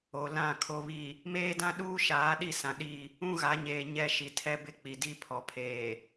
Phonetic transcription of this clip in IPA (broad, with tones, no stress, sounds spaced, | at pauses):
o˨ l ã˦˨ kʰ o˨ β i˨ | m eː˦ d ã˦ ɗ uː˦ ʃ aː˨˦ ɗ i˦˨ s ã˨ ɗ i˦˨ | ũ˦ ɣ a˨˦ ɲ eː˨ ɲ ɛ˦ ʃ i˨ tʰ ɛ˦ b ɪ˦ k͡p i˨ d i˦ pʰ ɔ˨ pʰ eː˨